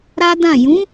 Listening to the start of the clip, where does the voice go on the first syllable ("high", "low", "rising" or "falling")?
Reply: high